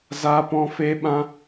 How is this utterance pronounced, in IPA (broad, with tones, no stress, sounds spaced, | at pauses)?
z aː˦ p ɔ̃˦ f eː˦ ɓ ã˦